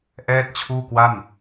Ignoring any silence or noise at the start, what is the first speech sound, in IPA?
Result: ʔ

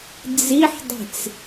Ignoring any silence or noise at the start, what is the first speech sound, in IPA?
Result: d͡z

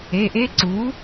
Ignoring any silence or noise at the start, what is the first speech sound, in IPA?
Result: e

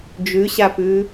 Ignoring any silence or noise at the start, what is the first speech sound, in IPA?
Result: d͡ʒ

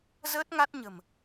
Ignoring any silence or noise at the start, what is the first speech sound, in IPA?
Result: z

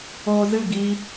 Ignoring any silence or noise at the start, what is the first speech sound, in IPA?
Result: oː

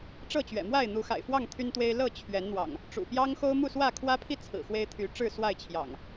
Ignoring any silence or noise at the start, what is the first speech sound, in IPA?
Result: ʈ͡ʂ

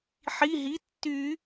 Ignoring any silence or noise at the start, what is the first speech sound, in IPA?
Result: ħ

